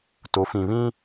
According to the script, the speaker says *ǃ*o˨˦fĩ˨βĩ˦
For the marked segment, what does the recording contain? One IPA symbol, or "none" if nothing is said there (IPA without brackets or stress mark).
t